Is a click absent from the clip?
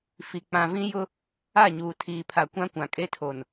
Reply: yes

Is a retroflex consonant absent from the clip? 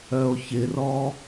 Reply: yes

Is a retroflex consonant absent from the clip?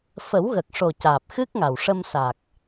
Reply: no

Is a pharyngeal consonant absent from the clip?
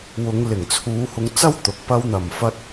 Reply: yes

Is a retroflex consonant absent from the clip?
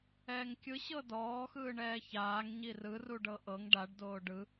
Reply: no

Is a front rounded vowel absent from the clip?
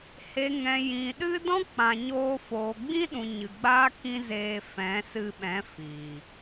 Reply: yes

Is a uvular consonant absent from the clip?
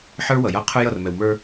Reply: no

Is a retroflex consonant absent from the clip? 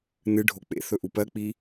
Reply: no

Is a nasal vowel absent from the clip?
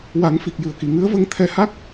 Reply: yes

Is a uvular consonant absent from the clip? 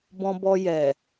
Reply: yes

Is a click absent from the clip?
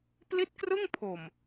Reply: yes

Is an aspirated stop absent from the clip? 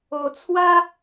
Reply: no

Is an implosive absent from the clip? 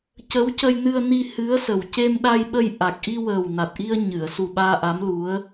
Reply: no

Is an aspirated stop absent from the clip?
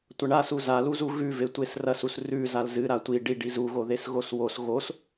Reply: yes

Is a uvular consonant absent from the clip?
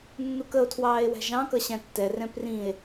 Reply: yes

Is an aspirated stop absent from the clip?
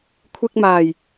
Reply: no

